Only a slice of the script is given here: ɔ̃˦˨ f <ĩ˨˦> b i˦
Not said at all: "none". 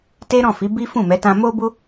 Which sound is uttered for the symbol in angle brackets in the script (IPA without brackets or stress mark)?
i˨˦